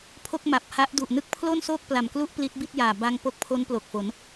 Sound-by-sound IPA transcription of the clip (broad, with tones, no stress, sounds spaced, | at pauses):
pʰ o˥˩ k̚ m a˨˩ p̚ h a˦˥ ʔ d u˨˩ ʔ n ɯ˥˩ k̚ pʰ l o˥˩ n s oː˥˩ k̚ p l a˨˩ m k l u˥˩ ʔ p l i˦˥ t̚ b i˥˩ t̚ j aː˨˩ b a˧ ŋ p o˦˥ k̚ pʰ o˦˥ n p l o˨˩ k̚ f o˩˦ n